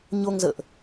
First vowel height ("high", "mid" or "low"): mid